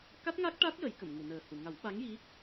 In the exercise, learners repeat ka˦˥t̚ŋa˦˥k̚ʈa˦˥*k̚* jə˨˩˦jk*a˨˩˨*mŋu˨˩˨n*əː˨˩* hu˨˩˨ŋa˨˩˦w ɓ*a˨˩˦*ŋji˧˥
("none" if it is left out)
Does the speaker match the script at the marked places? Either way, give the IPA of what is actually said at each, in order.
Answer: t̚, ə˨˩˨, əː˨˩, a˧˥

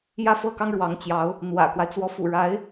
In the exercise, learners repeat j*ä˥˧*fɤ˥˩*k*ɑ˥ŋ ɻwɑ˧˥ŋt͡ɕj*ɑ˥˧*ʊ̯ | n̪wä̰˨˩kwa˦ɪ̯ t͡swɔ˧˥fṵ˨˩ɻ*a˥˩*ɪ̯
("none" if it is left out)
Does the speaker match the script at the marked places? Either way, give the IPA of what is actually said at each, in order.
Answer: ä˥˧, k, ɑ˧˥, a˧˥

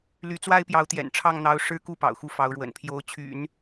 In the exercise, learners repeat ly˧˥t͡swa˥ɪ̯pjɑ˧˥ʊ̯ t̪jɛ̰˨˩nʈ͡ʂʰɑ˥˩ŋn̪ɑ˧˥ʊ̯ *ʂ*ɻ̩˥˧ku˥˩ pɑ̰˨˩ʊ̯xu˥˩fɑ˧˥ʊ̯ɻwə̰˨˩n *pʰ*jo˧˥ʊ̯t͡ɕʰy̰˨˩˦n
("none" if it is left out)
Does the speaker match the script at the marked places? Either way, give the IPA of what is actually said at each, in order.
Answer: ʂ, pʰ

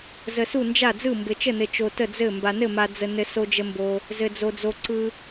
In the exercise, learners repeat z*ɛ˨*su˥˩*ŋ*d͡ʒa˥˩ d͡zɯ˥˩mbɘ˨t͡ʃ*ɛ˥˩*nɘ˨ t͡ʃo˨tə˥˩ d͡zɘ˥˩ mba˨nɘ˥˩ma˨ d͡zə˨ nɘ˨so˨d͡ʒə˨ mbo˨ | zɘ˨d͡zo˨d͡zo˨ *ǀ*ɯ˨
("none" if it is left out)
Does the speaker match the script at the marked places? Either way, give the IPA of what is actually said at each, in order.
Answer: ə˨, n, ə˥˩, ǀ

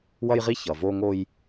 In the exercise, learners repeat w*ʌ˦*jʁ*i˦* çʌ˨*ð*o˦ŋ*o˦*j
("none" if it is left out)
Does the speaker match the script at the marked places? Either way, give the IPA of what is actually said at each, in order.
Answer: ʌ˦, i˦, v, o˦

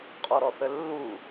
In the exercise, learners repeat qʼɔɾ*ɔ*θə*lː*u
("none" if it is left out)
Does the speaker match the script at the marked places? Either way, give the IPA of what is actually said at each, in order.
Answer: ɔ, lː

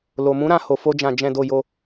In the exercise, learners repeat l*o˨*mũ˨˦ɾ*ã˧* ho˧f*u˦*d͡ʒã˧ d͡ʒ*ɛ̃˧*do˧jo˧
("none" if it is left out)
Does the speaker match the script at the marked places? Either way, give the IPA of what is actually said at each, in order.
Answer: o˨, ã˧, o˦, ɛ̃˧

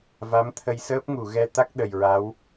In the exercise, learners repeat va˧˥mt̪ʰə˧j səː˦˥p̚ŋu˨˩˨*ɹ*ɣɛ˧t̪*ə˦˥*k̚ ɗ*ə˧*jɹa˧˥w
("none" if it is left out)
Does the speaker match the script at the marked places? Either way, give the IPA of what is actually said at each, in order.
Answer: none, a˦˥, ə˨˩

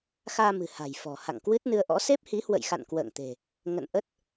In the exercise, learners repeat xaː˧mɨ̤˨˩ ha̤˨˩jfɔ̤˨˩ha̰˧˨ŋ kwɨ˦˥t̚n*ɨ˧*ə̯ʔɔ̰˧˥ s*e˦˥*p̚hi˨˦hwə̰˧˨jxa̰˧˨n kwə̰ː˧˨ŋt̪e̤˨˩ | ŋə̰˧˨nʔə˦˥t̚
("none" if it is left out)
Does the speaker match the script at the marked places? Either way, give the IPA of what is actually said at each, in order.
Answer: ɨ˧, e˦˥

